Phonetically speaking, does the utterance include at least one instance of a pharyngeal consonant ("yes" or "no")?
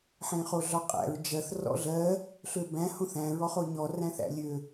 yes